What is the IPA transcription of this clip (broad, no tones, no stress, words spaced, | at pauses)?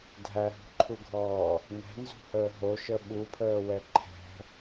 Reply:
dʱæɦṳǃʰuɡʱɔː | nɛ̤nzṳhəː ɦoʃə ɓupʰəːwɛ ǃʰɛ̤